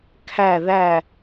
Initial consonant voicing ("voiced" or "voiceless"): voiceless